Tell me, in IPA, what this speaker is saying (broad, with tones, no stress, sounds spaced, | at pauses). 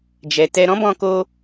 d͡ʒ ɛ˨ t ɛ˧ ɾ ɔ̃˦ b ɔ̃˧ k o˧